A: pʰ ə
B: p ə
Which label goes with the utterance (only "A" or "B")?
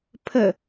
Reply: A